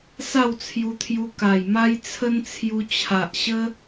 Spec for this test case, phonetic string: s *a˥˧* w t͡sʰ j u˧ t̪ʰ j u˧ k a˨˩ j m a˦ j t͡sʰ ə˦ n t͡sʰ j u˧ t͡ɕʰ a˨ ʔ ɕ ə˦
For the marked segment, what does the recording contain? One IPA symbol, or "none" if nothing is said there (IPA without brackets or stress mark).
a˥˧